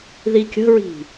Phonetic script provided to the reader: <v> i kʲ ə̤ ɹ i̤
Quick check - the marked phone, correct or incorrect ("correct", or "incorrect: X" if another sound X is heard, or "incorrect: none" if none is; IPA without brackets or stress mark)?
incorrect: ð